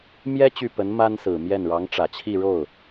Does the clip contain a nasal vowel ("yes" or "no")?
no